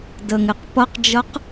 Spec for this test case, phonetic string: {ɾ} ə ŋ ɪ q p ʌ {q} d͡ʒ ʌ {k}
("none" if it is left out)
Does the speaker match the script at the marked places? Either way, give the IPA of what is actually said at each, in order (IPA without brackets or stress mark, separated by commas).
d, q, q